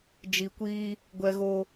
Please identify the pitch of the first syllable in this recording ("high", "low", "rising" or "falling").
low